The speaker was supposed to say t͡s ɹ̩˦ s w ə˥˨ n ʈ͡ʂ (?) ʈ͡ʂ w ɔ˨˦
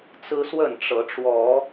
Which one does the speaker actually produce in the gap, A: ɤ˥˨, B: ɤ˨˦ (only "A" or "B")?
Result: B